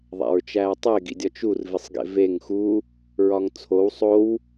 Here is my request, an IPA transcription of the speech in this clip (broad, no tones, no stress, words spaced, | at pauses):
ðˤæ̰ɹt͡ʃæːtˤe ɡḭdʲɒt͡ʃur visˤɡḛveŋ xu | ɹɒŋt͡sʰow sˤow